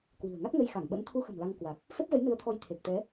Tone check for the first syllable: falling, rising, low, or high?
low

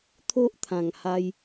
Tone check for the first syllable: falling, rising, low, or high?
high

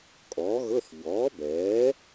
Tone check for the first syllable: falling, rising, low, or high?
rising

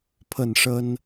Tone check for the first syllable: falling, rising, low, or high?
falling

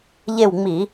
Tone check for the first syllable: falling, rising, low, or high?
falling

